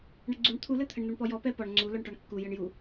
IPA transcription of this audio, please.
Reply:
ɳ ə ɡ͡ǀ u ɳ t̪ʰ u l ɘ t̪ʰ ə ɳ n̪ o ɳ p ɔ j ɔ p ɛ p ɔ ɳ ŋ͡ǀ u l ɔ ɳ ʈ ɔ ɳ kː u j ə ɳ j u

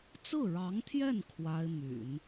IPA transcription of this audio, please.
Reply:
t͡s ɹ̩˥˩ ɻ ɑ˧˥ ŋ t̪ʰ j ɛ˥˩ n kʰ w a˥ ɪ̯ m y̰˨˩˦ n

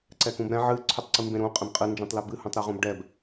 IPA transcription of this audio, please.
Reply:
ǀ ɛ k ũ b ɾ ɛ̃ ʕ ɨ ǀʰ ʏ tˤ ǀ ɨ m b ẽ ɾ ũ qʼ ɛ̃ b qʼ ɨ n d͡ʒ ɛ̃ tˤ l ɛ b ɨ h ũ tˤ ɾ ɛ ʁ ũ b ɖ ɛ b

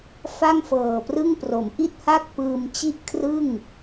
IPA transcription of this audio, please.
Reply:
f a˥˩ ŋ f ɤː˨˩ p r ɯ˥˩ ŋ p r o˩˦ m ʔ i˥˩ t̚ h a˥˩ k̚ p ɯː˧ m t͡ɕ i˥˩ ʔ kʰ r ɯ˥˩ ŋ

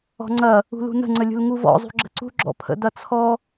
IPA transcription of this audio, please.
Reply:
ɔ̤ ŋ͡ǀ ɐ | ṳ l ṳ n ə̤ ŋ͡ǀ ə lʲ ṳ l ŋ u v ɔ̰ zˤ ṳ ɡ͡ǁ ə̤ ǀ ṳ ɡ͡ǁ ɔ̰ pʰ ə̰ d ɐ t͡sʰ ɔ

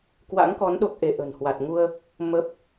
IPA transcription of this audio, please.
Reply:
k w a̰˧˥ ŋ k ɔ˨˦ n ɗ o˦˥ k̚ ʔ e˧ ʔ ə̤ː˨˩ n h w a˨˩ t̚ ŋ u˧ ə̯ | m ə˦˥ p̚

